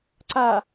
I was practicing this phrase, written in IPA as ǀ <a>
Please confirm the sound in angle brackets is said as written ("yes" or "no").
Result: yes